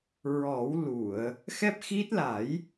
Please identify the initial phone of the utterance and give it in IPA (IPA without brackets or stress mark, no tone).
ɹ